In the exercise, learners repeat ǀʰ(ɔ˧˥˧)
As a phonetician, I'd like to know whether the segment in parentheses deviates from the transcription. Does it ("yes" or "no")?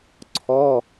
no